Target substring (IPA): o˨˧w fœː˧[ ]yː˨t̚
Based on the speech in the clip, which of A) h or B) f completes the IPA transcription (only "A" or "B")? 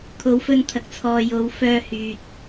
A